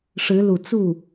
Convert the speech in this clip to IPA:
ʂ ɻ̩˧˥ l u˨˩ t͡s u˥˩

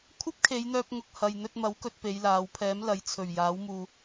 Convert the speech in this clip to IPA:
kʷʰ ɐ˥ p̚ kʰ e˨˧ j n̪ œː˧ p̚ ŋ ʊ˧ k̚ h ɐ˨ j n̪ ɵ˧ t̚ m ɐ˨˥ w k ɵ˨ t̚ p e˨˧ j l aː˨˧ w pʰ ɛː˨˥ m l ɐ˨˥ j t͡sʰ ɵ˨˩ ɥ j aː˨˥ w m uː˧

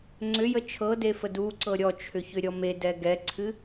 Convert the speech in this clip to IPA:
ŋ͡ǀ ʏ j ə t͡ʃʰ ɤ d e f ə d u ǀ ɤ ɾʲ ɔ t͡ʃʰ ʏ ç ʏ ɾʲ ɔ m e d ɛ ɡ ɛ ǀʰ ɨ

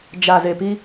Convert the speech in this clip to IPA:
d͡ʒ a˨ z e˨ p i˦

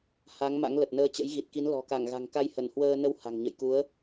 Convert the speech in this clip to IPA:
h a˨˦ ŋ m a̰˧˥ ŋ l ə˨˩ t̚ n əː˧ t͡ɕ ə̰˧˥ j ɣ i˨˩ t̚ k i˨˦ n l ɔ̤˨˩ k a˧˩ ŋ ɣ a̤˨˩ ŋ k a˧ j h ə˧˩ n h w əː˧ n ə˧ w h a̤˨˩ ŋ ɲ ə̰˧˨ j k u˨˦ ə̯

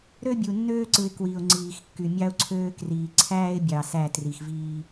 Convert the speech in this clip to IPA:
ɾ ø˦ bʲ u˨ nː øː˦ ǀ ɯ˨ ɪ̯ k w i˨ ʊ̯ ŋ͡ǀ iː˨ x kː y˨ mʲ ɑ˦ ʊ̯ ǀʰ øː˦ k r iː˨ ǀʰ æː˦ ɪ̯ bʲ ɑ˨ s æ˦˨ t r i˨ x v iː˦

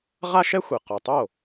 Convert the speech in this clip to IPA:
ʁ a˥ ʃ ɛ˥ xʷ e˩ q ɔ˩ tˤ o˥˩

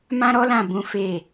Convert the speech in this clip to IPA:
m ã˦ ɾ ɔ˦ l ã˦˨ b ũ˨˦ f e˦˨

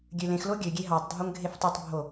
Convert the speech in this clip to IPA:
ɡʲ ø l ẽ x l o ɡʲ ø ɡʲ e ɦ ɑ tˤ dʱ o ŋ ɡʱ e f tˤ i tˤ bʱ o

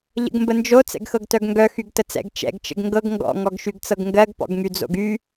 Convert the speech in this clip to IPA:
ʎ ə̰ ɡ m b ə n d͡ʒ o t͡s ɛ̰ ɡ x ɤ ɡ t œ ɡ ŋ ɡ œ x y ɡ t ə t͡s ɛ̰ ɡ t͡ʃ ɛ̰ ɡ t͡ʃ ə̰ ɡ ŋ ɡ ɤ ɡ ŋ ɡ ɔ̰ ŋ ɔ ɡ ʃ y ɡ t͡s ɤ ɡ ŋ ɡ ɜ ɡ p ɔ̰ ɡ ŋ y d͡z o̰ ɡ y

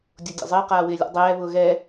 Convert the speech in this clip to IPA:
dʲ o dʲ a̰ zˤ ɪː q aː w ɪː lʲ a̰ dˤ ɛː β ʊː ɣ ɛ

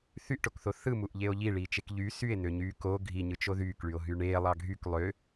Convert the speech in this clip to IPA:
θ y ʔ ʈ o k θ o θ ɯ m u ʔ ʎ e o̯ ʎ i ɭ iː t͡ʃ e k ʎ y s y e̯ n ø ɲ yː k o ɡʱ i ɲ ɯ t͡ʃ o ð yː k ɭ y o̯ ɦ y ɳ eː lˠ ɑ ɡʱ y k lˠ ø

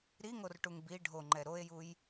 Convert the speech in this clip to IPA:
ɾ i ŋ o r ʈ u ŋ b i ɖʱ o ŋ͡ǃ ɛ ɾ o e̯ j u j

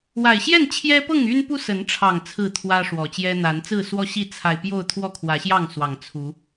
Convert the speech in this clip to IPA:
w a˨˩ ɪ̯ ɕ j ɛ˥˨ n t͡ɕʰ j ɛ˦ p ɤ˥˨ ŋ y˦ n p u˦ s ə˨˦ n ʈ͡ʂʰ ɑ˨˩ ŋ t͡sʰ ɹ̩˥˨ t̪ʰ w ä˦ ʂ w ɔ˨˩ t͡ɕ j ɛ˦ n̪ a˨˦ n t͡s ɹ̩˥˨ s w ɔ˥˨ ɕ i˥˨ t͡sʰ a˨˩ ɪ̯ p j o˥˨ ʊ̯ t̪ʰ w ɔ˥˨ kʰ w ä˨˦ ɕ j ɑ˥˨ ŋ s w ɑ˨˩ ŋ t͡sʰ u˨˦

